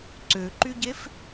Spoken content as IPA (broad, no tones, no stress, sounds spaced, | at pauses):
ǀ ø ǃ y ɟ e f